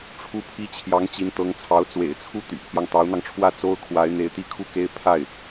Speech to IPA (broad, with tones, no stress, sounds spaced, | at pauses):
ʈ͡ʂʰ u˥ pʰ i˥ t͡ɕʰ j ɑ˧˥ ŋ t͡ɕ i˧˥ n t̪ ɤ˧˥ ŋ t͡sʰ ɑ˧˥ ʊ̯ t͡s w ḛ˨˩ ɪ̯ t͡sʰ u˥˩ t̪ y̰˨˩ pʰ j ɑ˦ ŋ t̪ ɑ˧˥ ʊ̯ n̪ ɑ˧ ŋ ʈ͡ʂʰ w ä˥˩ t͡s o˥ ʊ̯ kʰ w a˧˥ ɪ̯ n̪ e˧˥ ɪ̯ t̪ i˥˧ kʰ u˥˩ k e˥ ɪ̯ pʰ a˥˩ ɪ̯